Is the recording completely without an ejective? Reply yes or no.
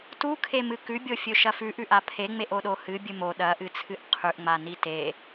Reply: yes